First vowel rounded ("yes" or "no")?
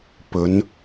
yes